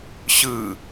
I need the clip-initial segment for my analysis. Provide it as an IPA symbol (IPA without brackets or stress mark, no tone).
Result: ɕ